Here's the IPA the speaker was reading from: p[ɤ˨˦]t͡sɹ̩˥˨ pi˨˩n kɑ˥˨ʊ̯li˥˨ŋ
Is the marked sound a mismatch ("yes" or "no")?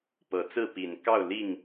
no